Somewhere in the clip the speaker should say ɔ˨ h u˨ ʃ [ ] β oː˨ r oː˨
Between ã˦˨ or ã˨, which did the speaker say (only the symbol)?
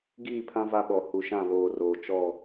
ã˦˨